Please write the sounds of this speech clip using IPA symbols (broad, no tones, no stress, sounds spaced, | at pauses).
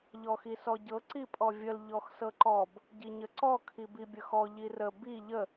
ʎ ɔ x i s ɔ ɟ ɤ ǀ i pʼ ɔ vʲ ə l ʎ ɔ x s ɤ ǃ ɔ b | ɟ i ɲ ə ǀ ɔ kʰ i b i bʲ ə x ɔ ʎ i r ə b i ʎ ə